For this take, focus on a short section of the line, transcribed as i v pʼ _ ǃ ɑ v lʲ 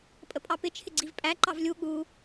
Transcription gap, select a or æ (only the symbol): æ